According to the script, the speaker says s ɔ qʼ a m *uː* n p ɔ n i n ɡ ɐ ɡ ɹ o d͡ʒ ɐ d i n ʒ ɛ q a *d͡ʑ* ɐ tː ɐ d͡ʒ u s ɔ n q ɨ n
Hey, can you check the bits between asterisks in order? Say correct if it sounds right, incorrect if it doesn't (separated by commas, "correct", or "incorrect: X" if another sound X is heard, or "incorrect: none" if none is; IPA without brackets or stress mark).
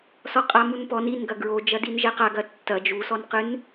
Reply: incorrect: u, incorrect: ɡ